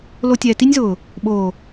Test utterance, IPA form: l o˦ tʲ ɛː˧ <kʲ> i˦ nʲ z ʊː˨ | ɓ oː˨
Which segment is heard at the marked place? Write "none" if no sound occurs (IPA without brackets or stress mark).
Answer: t